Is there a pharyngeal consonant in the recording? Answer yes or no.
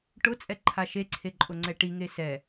no